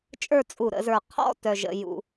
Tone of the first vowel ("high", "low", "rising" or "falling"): falling